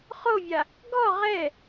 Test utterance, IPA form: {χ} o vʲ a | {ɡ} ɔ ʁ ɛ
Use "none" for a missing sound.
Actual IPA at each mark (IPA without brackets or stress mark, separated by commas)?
χ, ɡ